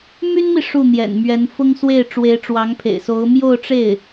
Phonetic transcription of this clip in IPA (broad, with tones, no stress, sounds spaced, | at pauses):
m y˥ n m i˨ ʂ u˥˩ n̪ j ɛ̰˨˩ n m ɥ ɛ˧˥ n f ʊ˥ ŋ s w e˥˩ ɪ̯ ʈ͡ʂ w e˧˥ ɪ̯ ʈ͡ʂ w ɑ˧˥ ŋ pʰ ḛ˨˩ ɪ̯ s o˧˥ ʊ̯ m j o˥˧ ʊ̯ ʈ͡ʂ e˥˩ ɪ̯